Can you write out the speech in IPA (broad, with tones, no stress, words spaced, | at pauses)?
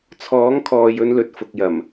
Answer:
t͡sʰɔː˨˥ŋkʰɔː˨jɵ˧nlɵ˨t̚ fʊ˨k̚jɐ˨˩m